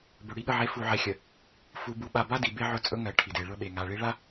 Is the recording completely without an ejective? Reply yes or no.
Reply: no